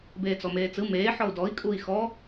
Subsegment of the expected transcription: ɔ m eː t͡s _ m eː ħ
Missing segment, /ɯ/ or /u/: ɯ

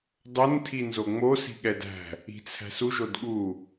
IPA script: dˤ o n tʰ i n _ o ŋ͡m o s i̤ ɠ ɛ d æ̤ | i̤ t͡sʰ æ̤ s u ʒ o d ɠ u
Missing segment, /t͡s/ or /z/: z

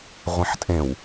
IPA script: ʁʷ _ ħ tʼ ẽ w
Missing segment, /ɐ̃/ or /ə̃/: ɐ̃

